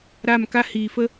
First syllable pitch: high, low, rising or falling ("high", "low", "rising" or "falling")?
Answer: falling